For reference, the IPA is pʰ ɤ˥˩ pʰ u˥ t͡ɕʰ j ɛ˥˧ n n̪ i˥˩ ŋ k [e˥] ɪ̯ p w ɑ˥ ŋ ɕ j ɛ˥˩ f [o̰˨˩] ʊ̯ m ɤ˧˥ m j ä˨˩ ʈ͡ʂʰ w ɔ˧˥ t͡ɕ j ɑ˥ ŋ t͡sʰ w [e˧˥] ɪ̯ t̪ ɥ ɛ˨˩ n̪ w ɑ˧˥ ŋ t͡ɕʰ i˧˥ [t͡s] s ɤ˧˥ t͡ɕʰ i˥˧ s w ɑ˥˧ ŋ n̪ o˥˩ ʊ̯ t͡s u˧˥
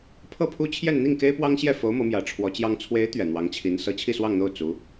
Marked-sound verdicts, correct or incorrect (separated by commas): correct, incorrect, correct, incorrect